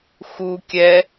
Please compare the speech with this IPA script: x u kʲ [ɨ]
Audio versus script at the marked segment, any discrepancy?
yes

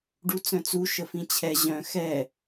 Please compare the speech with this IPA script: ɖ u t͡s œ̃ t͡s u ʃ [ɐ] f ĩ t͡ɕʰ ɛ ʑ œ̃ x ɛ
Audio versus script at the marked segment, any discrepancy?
yes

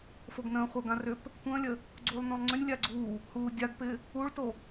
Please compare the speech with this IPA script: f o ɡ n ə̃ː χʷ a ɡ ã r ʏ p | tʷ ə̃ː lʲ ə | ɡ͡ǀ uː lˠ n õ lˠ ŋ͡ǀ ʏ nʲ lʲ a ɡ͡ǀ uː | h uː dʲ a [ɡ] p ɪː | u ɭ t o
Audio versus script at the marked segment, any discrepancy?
no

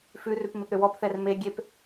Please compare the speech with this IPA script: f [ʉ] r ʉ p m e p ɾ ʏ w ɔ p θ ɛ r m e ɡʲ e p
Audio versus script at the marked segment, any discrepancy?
no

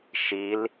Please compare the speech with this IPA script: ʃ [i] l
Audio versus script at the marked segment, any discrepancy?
no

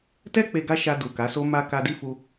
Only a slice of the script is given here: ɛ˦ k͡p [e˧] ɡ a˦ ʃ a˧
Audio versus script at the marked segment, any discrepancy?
no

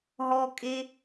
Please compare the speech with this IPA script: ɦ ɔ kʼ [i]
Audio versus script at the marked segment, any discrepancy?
yes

